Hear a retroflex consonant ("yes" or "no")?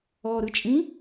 no